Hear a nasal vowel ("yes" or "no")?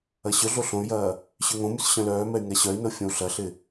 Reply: yes